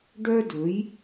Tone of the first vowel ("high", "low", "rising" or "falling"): high